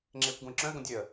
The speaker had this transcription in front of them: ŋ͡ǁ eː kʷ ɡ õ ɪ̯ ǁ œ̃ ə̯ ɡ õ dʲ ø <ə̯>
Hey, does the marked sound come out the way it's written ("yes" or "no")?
yes